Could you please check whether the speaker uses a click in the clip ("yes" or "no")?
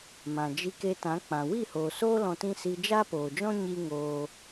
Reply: no